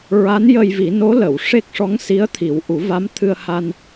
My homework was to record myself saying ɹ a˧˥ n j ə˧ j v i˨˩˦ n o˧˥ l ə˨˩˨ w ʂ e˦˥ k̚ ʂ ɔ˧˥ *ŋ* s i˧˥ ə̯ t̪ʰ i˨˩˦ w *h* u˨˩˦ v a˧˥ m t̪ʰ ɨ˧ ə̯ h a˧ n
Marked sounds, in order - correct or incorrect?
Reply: correct, incorrect: ʔ

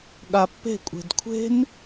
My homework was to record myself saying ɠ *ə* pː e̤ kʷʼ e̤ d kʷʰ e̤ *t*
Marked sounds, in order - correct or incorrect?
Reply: incorrect: a, incorrect: n

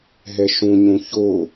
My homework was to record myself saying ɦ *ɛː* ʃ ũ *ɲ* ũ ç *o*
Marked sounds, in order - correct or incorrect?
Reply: incorrect: ɛ, correct, correct

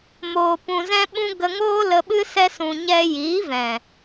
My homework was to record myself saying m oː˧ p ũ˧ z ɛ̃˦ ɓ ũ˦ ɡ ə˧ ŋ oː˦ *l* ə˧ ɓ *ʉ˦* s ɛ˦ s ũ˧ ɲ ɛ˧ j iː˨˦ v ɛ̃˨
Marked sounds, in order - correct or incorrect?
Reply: correct, incorrect: ɨ˦

